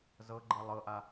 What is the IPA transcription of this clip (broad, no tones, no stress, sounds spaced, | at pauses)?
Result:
z ɤ ɡ͡ǃ ɤ lˠ ɤ ʔ a